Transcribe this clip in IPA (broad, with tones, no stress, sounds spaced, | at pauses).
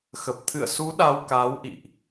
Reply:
x ə˨˩ p̚ t̪ʰ ɨ̰˧˨ ə̯ s u˨˦ ɗ a˧ w k aː˨˦ w ʔ ḭ˧˨ ʔ